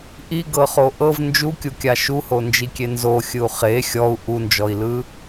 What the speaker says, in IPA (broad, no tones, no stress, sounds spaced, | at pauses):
ʔ i ɡ ɤ χ o ʔ ɤ v n d͡ʒ u kʲ u kʲ a ʃ u h o n d͡ʒ i kʲ e n z o xʲ ɯ u̯ χ e xʲ ɔ u̯ ʔ u n d͡ʒ ɔ i̯ l ɯ